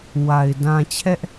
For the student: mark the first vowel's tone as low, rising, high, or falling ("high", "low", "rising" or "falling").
low